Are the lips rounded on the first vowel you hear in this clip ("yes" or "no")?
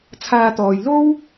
no